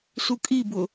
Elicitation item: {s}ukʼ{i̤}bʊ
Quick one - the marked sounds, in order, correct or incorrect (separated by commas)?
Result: correct, incorrect